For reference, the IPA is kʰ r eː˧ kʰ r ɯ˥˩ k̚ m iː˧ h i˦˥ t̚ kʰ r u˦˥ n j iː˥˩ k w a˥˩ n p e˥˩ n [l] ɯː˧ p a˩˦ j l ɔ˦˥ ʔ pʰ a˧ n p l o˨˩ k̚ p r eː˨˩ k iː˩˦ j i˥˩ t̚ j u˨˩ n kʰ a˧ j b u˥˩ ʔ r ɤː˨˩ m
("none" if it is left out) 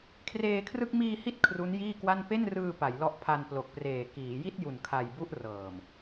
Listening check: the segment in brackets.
r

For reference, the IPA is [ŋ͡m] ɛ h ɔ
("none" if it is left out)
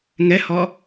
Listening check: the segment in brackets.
ŋ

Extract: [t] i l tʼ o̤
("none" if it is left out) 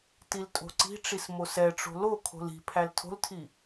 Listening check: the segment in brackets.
t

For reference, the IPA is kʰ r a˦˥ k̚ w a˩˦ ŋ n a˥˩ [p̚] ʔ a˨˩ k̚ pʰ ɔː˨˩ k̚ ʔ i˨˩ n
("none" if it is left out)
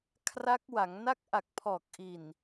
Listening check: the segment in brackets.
k̚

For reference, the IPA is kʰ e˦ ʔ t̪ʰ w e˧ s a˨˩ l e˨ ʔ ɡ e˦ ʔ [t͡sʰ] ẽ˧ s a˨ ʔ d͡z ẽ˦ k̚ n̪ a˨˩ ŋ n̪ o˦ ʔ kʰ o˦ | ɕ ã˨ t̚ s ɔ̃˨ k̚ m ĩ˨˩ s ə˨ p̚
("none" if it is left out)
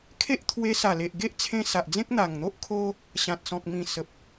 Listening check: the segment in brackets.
t͡sʰ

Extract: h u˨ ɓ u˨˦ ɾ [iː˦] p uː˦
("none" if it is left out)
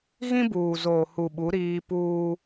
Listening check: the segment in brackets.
iː˦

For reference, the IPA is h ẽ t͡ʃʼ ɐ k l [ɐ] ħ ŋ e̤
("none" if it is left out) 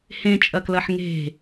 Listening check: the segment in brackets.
ɐ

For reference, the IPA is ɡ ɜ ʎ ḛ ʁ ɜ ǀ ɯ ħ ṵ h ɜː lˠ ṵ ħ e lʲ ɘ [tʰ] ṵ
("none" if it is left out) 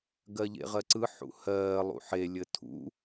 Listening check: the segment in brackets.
tʰ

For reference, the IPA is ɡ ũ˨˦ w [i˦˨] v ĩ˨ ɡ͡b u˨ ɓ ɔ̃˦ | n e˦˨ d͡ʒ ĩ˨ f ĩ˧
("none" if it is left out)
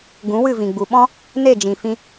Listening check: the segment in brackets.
ɨ˦˨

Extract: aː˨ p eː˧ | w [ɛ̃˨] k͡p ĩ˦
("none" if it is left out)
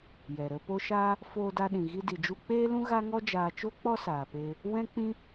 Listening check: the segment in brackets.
ɛ̃˦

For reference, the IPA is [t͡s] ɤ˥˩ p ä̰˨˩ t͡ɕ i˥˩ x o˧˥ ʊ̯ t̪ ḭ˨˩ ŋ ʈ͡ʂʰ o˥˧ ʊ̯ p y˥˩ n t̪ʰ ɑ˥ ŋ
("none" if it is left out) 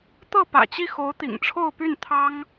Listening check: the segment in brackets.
t̪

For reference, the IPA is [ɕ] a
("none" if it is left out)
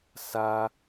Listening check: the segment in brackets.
s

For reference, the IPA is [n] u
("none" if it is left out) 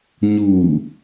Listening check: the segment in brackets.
ɲ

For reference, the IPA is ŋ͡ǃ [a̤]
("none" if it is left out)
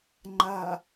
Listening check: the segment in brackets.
a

